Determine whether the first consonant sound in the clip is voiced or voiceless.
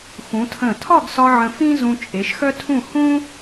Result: voiceless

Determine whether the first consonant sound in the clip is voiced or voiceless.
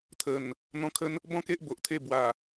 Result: voiceless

